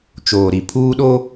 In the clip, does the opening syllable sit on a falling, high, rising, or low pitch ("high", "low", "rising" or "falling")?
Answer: low